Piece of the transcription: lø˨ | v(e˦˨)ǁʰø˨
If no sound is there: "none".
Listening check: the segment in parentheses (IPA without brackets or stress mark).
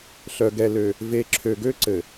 e˨